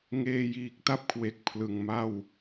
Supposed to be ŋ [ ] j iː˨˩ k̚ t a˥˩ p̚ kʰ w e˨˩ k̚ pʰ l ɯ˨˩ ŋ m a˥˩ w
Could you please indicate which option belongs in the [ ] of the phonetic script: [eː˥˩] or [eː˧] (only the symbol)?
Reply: eː˧